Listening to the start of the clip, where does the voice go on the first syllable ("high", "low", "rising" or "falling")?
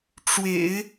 low